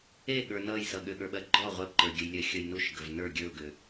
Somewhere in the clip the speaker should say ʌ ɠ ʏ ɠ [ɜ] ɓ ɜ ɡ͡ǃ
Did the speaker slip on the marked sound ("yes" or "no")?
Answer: yes